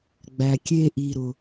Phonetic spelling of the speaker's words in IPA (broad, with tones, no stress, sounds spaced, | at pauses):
ɡ͡b æ˨ kʲ e˦ ʔ i˨ ɾ ʊ˨